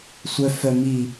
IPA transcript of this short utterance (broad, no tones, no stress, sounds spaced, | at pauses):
sʷ œ f œ m i